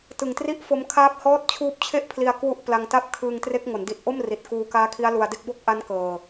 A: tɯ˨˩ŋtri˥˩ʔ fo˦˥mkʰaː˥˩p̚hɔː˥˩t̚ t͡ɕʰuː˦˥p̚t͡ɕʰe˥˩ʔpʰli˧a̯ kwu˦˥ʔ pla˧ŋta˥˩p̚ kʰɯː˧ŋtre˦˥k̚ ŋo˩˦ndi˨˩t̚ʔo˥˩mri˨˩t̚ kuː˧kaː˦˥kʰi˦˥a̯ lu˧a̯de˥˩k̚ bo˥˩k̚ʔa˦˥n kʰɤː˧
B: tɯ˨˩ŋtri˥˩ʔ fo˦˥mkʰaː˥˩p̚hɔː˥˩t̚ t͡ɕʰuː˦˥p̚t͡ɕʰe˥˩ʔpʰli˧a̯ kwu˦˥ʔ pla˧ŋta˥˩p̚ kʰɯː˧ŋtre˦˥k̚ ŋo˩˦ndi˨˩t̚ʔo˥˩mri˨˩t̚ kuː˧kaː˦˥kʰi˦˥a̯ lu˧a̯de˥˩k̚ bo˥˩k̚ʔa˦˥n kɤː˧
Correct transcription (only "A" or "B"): B